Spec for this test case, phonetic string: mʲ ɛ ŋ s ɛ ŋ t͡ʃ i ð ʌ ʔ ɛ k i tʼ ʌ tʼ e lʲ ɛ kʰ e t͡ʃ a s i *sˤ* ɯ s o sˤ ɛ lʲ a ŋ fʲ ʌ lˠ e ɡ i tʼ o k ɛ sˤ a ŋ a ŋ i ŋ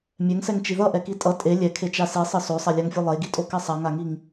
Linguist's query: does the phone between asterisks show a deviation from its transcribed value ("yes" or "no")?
no